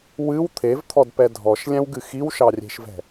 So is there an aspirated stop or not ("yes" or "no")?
yes